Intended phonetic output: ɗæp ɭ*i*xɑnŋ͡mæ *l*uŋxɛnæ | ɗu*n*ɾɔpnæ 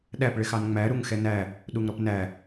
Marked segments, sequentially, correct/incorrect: incorrect, incorrect, incorrect

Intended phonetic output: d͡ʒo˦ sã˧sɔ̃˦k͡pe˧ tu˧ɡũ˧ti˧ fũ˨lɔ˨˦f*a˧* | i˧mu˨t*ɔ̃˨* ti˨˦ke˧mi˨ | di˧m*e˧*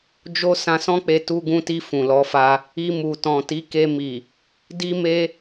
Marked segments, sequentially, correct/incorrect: correct, correct, correct

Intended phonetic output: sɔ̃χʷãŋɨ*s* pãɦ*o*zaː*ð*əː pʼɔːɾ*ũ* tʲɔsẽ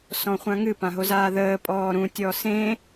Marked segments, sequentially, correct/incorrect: incorrect, correct, correct, correct

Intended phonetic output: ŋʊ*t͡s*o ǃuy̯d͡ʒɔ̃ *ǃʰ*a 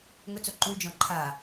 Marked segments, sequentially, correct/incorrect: correct, correct

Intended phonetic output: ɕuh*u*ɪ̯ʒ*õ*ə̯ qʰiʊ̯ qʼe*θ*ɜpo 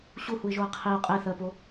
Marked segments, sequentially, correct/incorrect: correct, incorrect, correct

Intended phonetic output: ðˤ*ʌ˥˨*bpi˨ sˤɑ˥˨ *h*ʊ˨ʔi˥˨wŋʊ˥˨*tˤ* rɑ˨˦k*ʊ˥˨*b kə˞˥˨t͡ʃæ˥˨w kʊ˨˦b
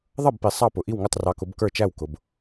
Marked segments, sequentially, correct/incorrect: correct, incorrect, correct, incorrect

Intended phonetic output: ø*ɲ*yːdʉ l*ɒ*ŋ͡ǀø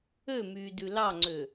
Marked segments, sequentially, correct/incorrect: incorrect, incorrect

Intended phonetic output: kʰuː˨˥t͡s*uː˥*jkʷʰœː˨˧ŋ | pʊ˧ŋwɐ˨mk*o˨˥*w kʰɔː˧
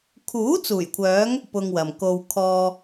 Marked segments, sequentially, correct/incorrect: incorrect, incorrect

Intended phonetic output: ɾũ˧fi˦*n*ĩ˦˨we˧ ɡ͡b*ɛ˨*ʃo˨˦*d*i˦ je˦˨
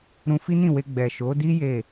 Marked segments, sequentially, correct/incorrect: correct, correct, correct

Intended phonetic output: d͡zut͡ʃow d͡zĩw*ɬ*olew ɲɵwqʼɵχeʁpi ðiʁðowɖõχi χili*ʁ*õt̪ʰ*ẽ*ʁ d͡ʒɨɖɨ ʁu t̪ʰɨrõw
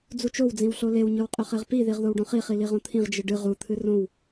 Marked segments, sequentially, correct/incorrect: correct, correct, incorrect

